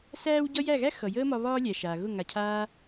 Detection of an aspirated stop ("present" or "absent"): present